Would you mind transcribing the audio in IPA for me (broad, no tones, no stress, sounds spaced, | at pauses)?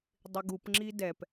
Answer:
dˤ ɪ ɡ u p ŋ͡ǁ i d ɛ p